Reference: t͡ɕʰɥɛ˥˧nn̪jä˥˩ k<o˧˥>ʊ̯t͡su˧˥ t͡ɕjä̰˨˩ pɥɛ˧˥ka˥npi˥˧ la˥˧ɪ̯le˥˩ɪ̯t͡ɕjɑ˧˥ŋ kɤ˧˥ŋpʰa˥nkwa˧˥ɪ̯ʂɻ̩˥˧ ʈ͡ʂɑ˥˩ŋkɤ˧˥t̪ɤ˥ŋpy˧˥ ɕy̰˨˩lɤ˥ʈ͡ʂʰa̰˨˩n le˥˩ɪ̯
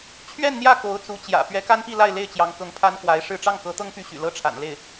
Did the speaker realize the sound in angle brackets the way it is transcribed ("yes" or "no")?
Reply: yes